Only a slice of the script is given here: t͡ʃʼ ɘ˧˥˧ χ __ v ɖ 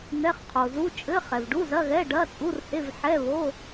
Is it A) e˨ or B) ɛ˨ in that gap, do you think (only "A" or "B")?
B